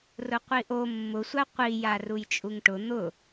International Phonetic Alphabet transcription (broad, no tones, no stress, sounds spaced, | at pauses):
r ʊ qʷ i ʔ o mː ʊ sʷ a qʷ i j a r u j t͡ʃʼ u ŋ ʈ ʊ n̪ ʊ